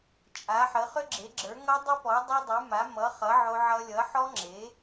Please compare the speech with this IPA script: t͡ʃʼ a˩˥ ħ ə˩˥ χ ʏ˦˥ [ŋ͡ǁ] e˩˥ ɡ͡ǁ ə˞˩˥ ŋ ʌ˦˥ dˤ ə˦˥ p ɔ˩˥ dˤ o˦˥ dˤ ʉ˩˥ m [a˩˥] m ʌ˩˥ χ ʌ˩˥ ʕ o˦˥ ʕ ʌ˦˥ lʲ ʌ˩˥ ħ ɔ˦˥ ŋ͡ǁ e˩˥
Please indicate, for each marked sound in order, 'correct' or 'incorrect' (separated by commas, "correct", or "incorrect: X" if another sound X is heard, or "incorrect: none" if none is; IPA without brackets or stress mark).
incorrect: ɡ͡ǁ, correct